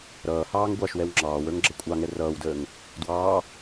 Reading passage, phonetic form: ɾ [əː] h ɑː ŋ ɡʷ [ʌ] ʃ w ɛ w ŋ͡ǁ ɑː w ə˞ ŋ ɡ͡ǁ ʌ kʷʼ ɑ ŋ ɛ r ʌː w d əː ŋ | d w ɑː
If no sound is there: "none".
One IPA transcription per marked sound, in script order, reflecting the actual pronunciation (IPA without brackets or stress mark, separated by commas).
ʌː, ɑ